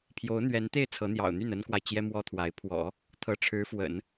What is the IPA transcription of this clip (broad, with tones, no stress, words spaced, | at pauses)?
pʰjo˧˥ʊ̯n̪ɥɛ˧˥nt̪e˥˩ɪ̯ t͡sʰɤ˧˥n̪jɑ̰˨˩ʊ̯n̪y˥˩n ə˥nkwa˨ɪ̯ t͡ɕjɛ˥mwɔ˥t̪ʰwa˧˥ɪ̯ pʰwɔ̰˨˩˦ | t̪ʰɤ˧˥ʈ͡ʂʰɻ̩˧˥fwə̰˨˩˦n